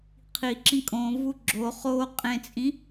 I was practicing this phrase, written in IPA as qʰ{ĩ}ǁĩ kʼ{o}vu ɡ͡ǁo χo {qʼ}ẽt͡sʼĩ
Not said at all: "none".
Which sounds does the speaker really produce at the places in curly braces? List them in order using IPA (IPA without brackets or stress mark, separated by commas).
i, õ, qʼ